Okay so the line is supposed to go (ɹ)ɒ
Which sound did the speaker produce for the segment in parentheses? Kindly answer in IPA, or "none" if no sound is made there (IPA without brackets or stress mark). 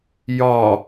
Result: j